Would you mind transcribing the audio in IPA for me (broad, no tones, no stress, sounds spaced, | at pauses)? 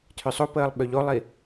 tʰ ʏ sˤ o p əː lˠ ɓ ø ʎ o lˠ i